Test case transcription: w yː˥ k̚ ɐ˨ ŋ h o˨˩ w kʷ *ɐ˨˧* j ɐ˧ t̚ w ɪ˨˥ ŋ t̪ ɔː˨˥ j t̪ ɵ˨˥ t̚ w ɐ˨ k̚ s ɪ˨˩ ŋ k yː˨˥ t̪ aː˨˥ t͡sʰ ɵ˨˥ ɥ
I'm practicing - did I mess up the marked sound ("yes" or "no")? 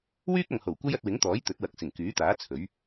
yes